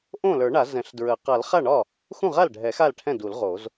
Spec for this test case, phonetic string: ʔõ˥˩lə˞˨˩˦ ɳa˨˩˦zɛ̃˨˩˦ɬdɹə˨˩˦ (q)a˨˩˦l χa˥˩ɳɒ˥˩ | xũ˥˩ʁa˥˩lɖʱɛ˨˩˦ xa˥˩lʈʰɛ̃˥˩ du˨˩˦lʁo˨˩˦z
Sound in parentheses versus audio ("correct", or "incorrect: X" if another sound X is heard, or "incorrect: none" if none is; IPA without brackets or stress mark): correct